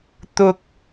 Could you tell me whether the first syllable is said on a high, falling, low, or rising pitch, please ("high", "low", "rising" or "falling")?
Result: high